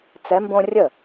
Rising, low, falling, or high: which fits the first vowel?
rising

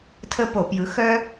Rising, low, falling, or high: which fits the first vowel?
high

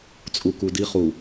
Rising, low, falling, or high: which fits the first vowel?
low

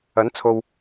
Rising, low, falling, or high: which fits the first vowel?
rising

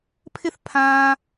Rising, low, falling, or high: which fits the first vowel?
high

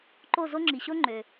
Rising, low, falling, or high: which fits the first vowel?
falling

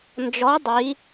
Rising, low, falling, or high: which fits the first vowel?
rising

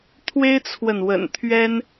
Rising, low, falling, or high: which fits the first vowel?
high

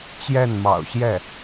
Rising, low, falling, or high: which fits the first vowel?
falling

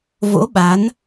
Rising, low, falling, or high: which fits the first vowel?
rising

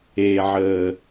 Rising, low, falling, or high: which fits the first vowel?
low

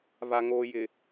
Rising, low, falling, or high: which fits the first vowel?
low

